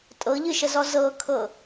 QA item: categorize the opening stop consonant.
ejective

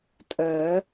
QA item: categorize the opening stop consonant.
ejective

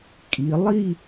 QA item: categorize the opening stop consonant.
ejective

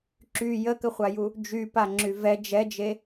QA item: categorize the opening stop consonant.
click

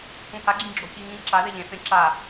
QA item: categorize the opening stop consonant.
click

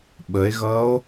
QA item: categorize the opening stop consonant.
implosive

